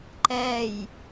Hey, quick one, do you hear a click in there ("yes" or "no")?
yes